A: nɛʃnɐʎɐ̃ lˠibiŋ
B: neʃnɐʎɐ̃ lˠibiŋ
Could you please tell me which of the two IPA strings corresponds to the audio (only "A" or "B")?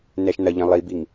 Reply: A